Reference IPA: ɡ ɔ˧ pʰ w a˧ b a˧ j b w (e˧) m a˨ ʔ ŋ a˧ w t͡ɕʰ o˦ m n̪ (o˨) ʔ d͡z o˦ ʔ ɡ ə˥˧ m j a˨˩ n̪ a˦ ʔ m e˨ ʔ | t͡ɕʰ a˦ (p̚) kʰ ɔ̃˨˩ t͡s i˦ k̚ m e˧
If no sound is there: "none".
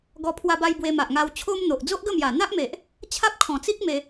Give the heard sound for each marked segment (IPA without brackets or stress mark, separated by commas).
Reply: e˧, o˨, p̚